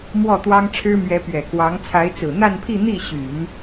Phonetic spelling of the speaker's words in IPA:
mwɔ˥˩t̪wɑ˥ŋʈ͡ʂʰɻ̩˥ mɥɛ˧˥pɥɛ˨˩ kwɑ˧˥ŋt͡sʰa˧˥ɪ̯ t͡sɹ̩˨˩n̪a˥˧npʰi˥˧ n̪i˥˩ɕy˨˩˦n

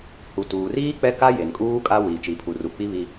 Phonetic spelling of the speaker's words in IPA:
hu˨tuː˨riː˦ k͡pɛ˦ka˦ je˨nkʼuː˦ kʼa˦wiː˨ t͡ʃi˨pʰu˨ru˨ k͡pi˦βi˦

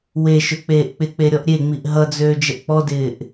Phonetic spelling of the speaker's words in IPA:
we ʃøk͡peːʔk͡pɪk͡pe ɾʲɔʔɾʲeŋ͡miʔ ɦʌd͡zøː d͡ʒəʔk͡pɔdɪːʔ

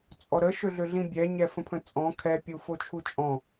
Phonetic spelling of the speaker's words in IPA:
t͡sʼɔɾə ʃøɮøɮĩbʲɛ ɲɛfə̃pʰə̃t͡sʼɔ̃ kʰɛ pʲufot͡ʃʰut͡ʃʼɔ̃

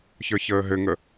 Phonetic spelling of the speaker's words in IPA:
çə˞çəːɦɘŋə

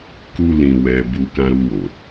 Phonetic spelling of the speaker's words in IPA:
ku˧ lĩ˧wɛ˧ bu˧ kã˧ɾu˧wo˨

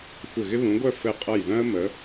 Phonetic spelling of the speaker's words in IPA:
xʷɪ˧˩ɣɪ˦βũ˨˦ɡʷœ˥˨ fɘ˧˩qʼʌ˧˩jðœ̃˦ə̯ mə˨˦

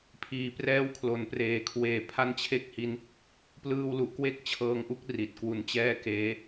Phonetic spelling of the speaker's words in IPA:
pʰiː˩˦prɛː˦˥wkʰlo˩˦n preː˩˦kʰweː˨˩ pʰa˧n t͡ɕʰe˥˩k̚hi˦˥n | plɯː˧wlu˨˩ʔkwe˦˥k̚ t͡ɕʰɤː˧ŋʔu˦˥k̚ ri˨˩t̚kwu˧nt͡ɕɛː˥˩ keː˦˥

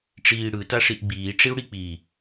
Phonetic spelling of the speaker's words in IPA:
ʈ͡ʂiːɽɯ taʂiʔɡ͡biː ʈ͡ʂiu̯ɽik͡pi

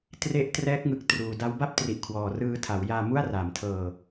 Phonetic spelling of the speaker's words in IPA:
tre˦˥ʔtrɛː˦˥k̚ŋɯ˨˩k̚ truː˧ da˦˥wba˥˩p̚tri˨˩ʔ kʰwɔː˨˩rɯː˧tʰa˩˦w jaː˧mu˥˩a̯raː˩˦mtʰɤː˧

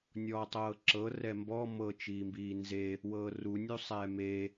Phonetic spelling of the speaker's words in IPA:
nʲɔːtˤɤːǁɤ rɛmbɔ mɤ t͡ʃiːmbiːnze | wɤːrunʲu sˤɛːme

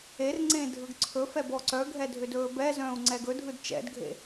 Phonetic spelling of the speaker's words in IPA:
erŋ͡ǀẽ dʱɯɡǀʰɵfɛ bɔǀœɡʱɛ dʱʏdɵːbɛzœ̃ːu̯ ŋ͡ǀɛɡɵdʱɯd t͡ʃɛ̰dɡʱḛ

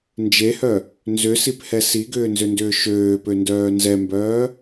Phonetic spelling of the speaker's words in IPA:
nd͡ʒehœ | nzʏsiphɛ siɡʏːnzʏndʏː ʃøːpøndœː nzɛmbœː

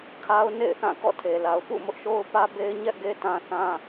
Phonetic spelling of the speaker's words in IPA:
kʰa˦ʊ̯ nḛ˦˨ɪ̯ θã˦˨kɔ̰˦˨tʰe˨la˨ʊ̯ pṵ˦˨mʊ˦ʔ ʃo˦ʊ̯pä˦be˦ɪ̯ɲɛ˦ʔ ɡe˦ tã˦θã˦

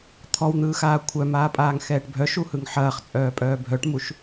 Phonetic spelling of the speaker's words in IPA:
t̪ʰɔwn̪ɯːxaː kʷʰœmaːpʼaːŋ xɛːʈbʱœʃ uhɯŋħɐːχ t͡sʼœːpʼœːbʱœʈmuʃ

